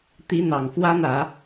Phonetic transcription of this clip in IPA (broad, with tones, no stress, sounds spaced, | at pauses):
t̪ i˧˥ n̪ ɑ˨˩ ŋ f w a˥ n ä˨˩˦